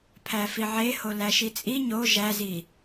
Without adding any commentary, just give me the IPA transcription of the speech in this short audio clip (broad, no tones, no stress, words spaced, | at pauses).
pʰæfiʕeho læʃit͡sʼi ɲo ʒæzi